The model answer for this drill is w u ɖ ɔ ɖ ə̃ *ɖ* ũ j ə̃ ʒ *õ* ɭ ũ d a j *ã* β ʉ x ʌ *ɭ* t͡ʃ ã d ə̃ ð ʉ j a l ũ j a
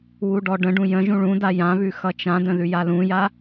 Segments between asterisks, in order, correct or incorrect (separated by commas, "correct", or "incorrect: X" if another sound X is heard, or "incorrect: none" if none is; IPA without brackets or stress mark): correct, incorrect: ũ, correct, incorrect: none